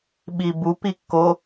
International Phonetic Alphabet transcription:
ɓibup ikːo

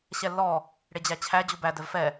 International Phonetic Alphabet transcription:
ɕɛlːɔ | ɽed͡ʑæt͡ɕʰæ d͡ʑubæ dɛvfɛ

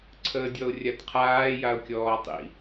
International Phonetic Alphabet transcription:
ǀʰəːdʲɔʊ̯rʲatqʰaː jaʊ̯kʲɔːtˤḭ

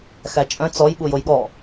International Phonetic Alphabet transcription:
xæt͡ʃʼœ̃ t͡sɔjɓu jojɠɔ

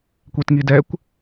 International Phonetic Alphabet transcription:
kʷetŋidɛkʷ

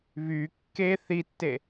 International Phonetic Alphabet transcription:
βy kːe θitːe

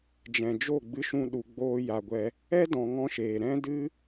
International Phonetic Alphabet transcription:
d͡ʒɛ̃˨d͡ʒo˦˨ɡ͡bɨ˧ʃũ˧ ɗu˧ɡ͡boː˦ja˧ɡʷɛ˦ | ɛ˦ dɔ̃˧ŋɔ̃˦ʃeː˨ ɾɛ̃˦dɨ˦

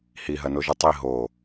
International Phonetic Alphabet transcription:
hiɦɐnoʒu tˤi ɦo

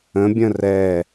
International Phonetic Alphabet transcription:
ə̃bʲə̃ rɛ

